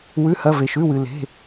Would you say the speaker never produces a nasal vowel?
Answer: yes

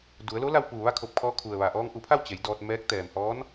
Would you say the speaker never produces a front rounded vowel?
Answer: yes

